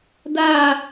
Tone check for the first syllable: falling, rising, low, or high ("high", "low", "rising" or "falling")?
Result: falling